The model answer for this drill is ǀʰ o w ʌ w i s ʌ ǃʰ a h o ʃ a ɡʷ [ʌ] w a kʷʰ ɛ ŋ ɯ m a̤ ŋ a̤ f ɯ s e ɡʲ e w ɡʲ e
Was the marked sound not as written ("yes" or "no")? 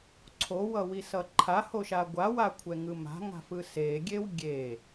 yes